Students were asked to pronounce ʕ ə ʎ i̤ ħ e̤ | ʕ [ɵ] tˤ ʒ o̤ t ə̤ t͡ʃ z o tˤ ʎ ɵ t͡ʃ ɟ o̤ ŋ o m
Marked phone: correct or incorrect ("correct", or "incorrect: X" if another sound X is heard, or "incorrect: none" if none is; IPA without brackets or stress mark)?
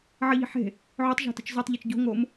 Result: incorrect: o